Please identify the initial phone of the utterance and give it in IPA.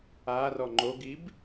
a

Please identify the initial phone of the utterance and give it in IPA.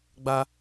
ɡ͡b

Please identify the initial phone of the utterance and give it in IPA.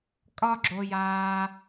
kʼ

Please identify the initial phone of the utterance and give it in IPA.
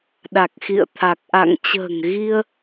ɗ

